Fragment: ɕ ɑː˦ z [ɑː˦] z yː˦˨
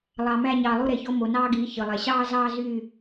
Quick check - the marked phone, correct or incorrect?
correct